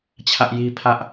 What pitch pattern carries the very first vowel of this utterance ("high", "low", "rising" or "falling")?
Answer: high